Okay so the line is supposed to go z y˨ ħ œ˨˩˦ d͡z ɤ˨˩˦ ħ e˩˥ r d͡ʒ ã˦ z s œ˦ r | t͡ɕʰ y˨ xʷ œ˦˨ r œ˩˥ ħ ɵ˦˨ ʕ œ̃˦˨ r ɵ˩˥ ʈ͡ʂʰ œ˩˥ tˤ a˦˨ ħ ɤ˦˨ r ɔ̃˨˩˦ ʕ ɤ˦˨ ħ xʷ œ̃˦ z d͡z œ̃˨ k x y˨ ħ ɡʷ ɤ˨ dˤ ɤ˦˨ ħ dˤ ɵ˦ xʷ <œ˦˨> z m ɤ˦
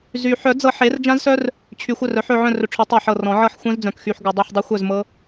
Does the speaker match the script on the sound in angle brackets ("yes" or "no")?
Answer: yes